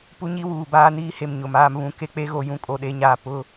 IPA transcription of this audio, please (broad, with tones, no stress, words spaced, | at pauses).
pu˦ɲi˦wuː˨ baː˦niː˦he˨m ɲʊ˨maː˦mβũ˦˨ ke˦k͡pe˦ɣo˨ jũ˦ kʼo˨ɗe˨˦ɲaː˨ pʊ˦